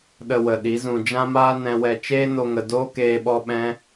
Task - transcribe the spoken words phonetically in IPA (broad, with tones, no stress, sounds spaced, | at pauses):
ɗ ə˧ w ə˨ ɗ i˨˦ z ũ˧ d͡ʒ ã˦ m aː˦ n ɛ̃˧ w ɛ˧ t͡ʃ eː˦ n o˧ ŋ ə˨ d oː˦ k eː˧ ɓ ɔ˧ ɓ ɛ̃˦